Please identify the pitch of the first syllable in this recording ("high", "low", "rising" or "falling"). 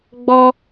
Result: high